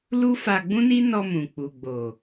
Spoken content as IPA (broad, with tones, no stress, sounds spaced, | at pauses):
l u˦ f a˧ ɡ͡b ũ˦ n i˦ n ɔ˧ m ũ˨ k͡p u˨ ɡ͡b o˨